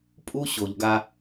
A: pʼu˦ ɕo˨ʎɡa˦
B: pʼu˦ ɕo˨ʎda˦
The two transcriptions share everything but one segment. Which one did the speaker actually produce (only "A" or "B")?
A